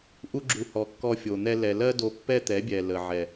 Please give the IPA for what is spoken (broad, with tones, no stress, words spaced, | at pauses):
ʔu˧ɡ͡ǁu˨ hɔ˨kːɔ˧fʲo˨n̪ɛ˧ lɛ˨lɜ˦do˧ pːɛ˦t̪ɛ˨˦bʲɛ˨ lə˨ʕɛ˨